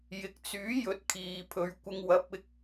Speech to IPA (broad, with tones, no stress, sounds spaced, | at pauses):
j ɪ˨ k̚ t͡s yː˨˥ j ɵ˨˥ t̚ kʰ iː˨ pʰ ɵ˨˧ ɥ kʷ ɪ˧ ŋ w ɐ˨˥ p̚ ɪ˧ k̚